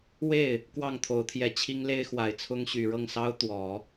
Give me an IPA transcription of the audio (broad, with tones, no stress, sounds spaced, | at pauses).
w e˥˩ ɪ̯ | k w ɑ˥˩ ŋ t̪ʰ o˧˥ ʊ̯ t̪ʰ j ɛ˧˥ t͡ɕʰ i˥ ŋ l e˥ ɪ̯ x w a˨˩ ɪ̯ t͡sʰ ʊ˥ ŋ ɕ y˨˩ ɻ ɤ˥˩ ŋ s ɑ˥ ʊ̯ t̪ w ɔ˨˩˦